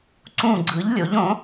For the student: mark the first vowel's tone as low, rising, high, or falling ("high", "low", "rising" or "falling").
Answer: falling